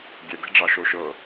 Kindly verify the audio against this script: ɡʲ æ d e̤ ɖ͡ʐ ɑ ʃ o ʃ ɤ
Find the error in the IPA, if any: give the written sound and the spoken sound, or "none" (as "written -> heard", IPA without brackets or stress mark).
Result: æ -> ɛ